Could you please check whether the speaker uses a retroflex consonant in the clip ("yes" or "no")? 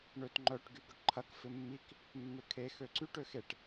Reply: yes